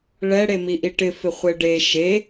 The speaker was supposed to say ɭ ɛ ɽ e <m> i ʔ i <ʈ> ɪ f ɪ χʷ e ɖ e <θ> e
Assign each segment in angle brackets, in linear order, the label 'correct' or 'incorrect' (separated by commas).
correct, correct, incorrect